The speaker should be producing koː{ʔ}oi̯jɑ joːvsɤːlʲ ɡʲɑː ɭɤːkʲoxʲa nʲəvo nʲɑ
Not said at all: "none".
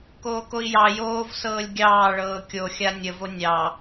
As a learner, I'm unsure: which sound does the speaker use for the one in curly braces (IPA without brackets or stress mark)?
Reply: k